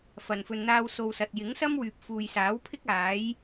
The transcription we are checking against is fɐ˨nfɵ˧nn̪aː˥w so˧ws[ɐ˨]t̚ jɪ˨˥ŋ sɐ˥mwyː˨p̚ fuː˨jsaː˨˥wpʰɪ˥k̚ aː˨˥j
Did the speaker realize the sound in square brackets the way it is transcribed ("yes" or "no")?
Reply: yes